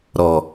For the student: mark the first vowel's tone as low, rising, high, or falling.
low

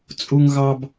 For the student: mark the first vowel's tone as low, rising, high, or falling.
high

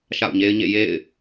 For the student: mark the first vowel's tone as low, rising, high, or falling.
falling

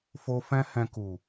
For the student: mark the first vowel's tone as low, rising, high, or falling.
high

